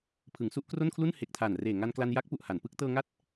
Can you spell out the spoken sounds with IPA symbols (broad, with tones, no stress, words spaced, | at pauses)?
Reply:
pʰɯ˩˦ŋsu˥˩ʔkro˥˩nkʰlu˥˩n he˨˩k̚tʰa˨˩n reː˨˩ŋa˧nkla˧n ja˦˥k̚pu˨˩ʔ ha˩˦npɯ˦˥k̚ tɤː˧ŋa˦˥t̚